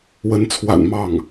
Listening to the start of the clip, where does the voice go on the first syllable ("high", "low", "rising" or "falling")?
rising